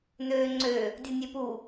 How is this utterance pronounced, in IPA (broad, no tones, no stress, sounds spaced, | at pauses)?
n øː ŋ͡ǀ ø | dʲ u nʲ ø p u